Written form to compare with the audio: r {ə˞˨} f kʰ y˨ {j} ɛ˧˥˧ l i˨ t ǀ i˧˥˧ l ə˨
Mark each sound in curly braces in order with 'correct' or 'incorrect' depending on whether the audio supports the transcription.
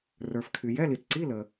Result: correct, correct

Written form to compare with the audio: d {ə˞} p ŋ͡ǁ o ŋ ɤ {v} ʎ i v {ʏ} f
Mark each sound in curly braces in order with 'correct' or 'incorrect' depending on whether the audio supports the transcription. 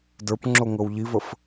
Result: correct, incorrect, incorrect

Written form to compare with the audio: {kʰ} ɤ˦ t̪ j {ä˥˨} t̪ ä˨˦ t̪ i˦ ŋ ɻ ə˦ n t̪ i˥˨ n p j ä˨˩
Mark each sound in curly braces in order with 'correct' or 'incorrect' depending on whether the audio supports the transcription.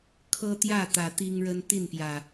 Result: correct, correct

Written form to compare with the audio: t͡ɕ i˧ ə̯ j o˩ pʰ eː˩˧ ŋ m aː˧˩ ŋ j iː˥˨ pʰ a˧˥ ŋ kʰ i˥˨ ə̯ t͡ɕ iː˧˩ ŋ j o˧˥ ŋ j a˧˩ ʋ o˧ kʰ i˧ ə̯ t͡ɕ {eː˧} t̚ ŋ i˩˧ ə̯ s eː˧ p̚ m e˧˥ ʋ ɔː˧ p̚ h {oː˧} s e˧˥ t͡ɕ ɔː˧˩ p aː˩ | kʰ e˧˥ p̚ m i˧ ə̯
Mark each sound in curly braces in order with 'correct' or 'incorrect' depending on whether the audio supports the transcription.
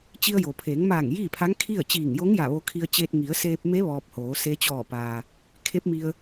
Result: correct, incorrect

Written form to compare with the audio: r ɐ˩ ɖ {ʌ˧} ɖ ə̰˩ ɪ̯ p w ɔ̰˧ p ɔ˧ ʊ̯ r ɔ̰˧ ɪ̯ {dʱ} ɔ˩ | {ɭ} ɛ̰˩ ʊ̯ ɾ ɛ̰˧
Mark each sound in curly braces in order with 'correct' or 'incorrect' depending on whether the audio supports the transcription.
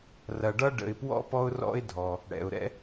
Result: correct, correct, incorrect

